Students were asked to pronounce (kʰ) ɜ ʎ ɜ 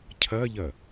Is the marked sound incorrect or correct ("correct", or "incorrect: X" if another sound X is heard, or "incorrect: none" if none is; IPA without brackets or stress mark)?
incorrect: cʰ